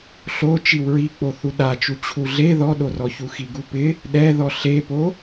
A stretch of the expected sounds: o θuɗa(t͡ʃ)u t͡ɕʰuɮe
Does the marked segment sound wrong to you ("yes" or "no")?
no